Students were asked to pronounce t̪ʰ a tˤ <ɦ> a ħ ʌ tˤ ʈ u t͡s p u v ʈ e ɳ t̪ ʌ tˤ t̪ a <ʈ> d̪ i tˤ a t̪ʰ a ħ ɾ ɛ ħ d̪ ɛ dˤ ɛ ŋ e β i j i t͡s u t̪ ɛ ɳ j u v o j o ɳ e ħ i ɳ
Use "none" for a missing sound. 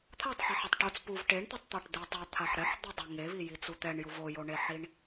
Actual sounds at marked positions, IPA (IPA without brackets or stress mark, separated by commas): ħ, ʈ